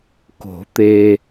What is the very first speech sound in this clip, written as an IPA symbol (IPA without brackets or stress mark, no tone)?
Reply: k